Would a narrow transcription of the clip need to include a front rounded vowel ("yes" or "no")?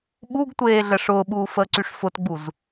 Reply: yes